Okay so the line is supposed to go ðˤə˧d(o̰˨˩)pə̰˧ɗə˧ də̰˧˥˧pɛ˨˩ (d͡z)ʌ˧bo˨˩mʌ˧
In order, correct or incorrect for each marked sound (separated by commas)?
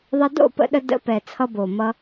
incorrect, incorrect